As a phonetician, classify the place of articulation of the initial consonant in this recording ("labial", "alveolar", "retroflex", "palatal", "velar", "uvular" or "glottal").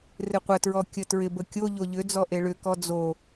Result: alveolar